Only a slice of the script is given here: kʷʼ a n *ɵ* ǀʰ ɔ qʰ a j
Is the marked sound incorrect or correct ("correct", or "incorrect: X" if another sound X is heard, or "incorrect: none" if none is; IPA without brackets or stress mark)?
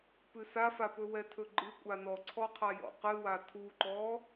incorrect: ɔ